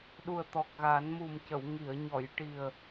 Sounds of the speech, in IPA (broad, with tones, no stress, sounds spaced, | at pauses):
ɗ u˨˩ ə̯ t̪ ɔ˨˩ k̚ ɣ a˨˩˦ n m u˨˩ m c ə˨˩˨ w ŋ i˨˩˨ ə̯ ɲ ɔ˨˩˨ j ʈ i˨˩ ə̯